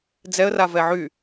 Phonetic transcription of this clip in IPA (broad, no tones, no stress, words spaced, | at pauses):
d͡zɛə̯ra vɛʕy